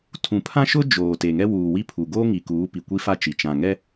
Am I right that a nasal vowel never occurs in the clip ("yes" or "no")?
no